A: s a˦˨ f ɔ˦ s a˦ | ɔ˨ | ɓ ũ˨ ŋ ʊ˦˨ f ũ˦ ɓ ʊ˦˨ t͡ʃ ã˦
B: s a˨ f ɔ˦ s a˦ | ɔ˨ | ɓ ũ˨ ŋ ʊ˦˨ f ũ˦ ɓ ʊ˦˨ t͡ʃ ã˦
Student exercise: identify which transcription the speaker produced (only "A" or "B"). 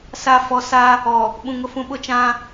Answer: A